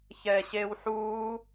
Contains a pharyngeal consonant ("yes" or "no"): yes